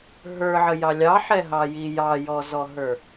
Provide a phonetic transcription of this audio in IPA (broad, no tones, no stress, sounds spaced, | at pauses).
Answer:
ɦ ə˞ ʕ ə j ɑ lʲ ɑ ħ ɛ ɦ ɑ j i j ɑ j ɔ z ɔ ɦ ə˞